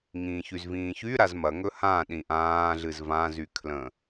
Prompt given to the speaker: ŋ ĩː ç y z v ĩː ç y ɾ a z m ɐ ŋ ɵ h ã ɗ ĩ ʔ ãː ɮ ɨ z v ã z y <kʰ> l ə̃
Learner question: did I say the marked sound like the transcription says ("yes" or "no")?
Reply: yes